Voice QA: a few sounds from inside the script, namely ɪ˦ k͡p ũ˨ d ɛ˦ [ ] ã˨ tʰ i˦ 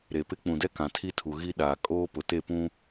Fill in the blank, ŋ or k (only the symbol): k